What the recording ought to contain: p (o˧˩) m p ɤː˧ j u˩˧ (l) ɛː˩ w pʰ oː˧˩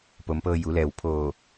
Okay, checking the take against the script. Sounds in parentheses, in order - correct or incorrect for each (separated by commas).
incorrect, correct